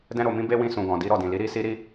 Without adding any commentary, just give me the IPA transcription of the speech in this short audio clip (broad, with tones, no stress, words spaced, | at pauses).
dɛ̃˧ɾo˨mĩ˧ be˦wĩ˧ sũ˨ɡɔ̃˨di˨˦ ɾɔ˦˨dĩ˨li˨˦ ɾi˦ si˦ɾi˦